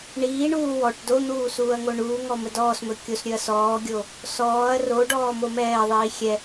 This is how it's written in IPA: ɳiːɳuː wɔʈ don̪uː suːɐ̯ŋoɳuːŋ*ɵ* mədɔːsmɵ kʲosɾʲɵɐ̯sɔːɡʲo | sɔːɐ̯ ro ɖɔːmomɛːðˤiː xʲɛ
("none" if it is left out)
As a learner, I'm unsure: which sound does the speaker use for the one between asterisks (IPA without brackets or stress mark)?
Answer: ɔ